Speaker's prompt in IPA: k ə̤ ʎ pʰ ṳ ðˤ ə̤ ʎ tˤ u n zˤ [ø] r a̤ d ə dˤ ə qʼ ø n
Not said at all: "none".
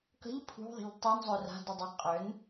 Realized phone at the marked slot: ø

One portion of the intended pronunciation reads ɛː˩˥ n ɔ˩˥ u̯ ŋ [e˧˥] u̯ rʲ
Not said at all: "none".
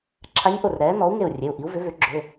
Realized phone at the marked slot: e˧˩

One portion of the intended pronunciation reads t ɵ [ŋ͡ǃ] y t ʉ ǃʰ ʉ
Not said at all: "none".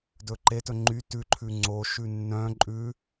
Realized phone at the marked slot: ŋ͡ǃ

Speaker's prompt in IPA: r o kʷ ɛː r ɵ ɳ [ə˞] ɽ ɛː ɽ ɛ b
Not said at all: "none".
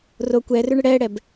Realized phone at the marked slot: ə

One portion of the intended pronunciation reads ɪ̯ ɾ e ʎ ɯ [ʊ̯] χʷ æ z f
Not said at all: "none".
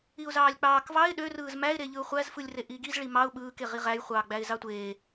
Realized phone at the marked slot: ʊ̯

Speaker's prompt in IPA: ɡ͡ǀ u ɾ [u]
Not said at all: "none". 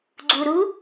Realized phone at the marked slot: u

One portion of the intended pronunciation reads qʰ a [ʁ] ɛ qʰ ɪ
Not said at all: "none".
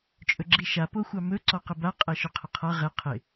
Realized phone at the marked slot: ʁ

